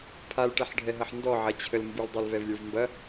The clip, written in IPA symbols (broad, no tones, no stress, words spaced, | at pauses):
pʰalʈɛħɖʱɛɦɐħ ndɔʕɐt͡ɕʰəl mbuldˤalvɛvlʲə˞v mbɐ